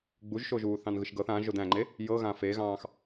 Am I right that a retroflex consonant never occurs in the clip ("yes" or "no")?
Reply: yes